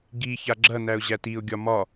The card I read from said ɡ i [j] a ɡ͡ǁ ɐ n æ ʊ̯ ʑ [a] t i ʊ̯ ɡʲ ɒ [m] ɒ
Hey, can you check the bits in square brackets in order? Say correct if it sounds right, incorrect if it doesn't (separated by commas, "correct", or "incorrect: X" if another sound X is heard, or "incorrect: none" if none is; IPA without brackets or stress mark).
incorrect: ç, incorrect: æ, correct